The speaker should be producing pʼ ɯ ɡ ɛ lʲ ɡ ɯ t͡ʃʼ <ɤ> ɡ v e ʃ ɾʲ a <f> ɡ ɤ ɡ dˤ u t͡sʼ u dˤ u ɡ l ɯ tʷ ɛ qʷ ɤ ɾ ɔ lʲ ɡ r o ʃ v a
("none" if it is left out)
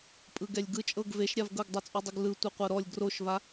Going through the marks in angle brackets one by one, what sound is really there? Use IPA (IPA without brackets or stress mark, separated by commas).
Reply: ɤ, v